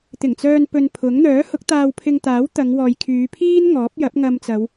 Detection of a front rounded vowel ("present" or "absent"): present